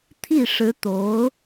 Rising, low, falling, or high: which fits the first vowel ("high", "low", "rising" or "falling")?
falling